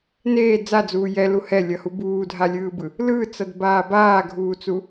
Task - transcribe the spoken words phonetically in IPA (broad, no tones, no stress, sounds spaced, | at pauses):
n eː d͡z a d͡z uː j ɛ l u h ɛ lʲ ʌ h u b uː dʱ a lʲ ɯː b ɯ | l ɯ t͡s ʌ d b aː b aː ɡʱ uː t͡s u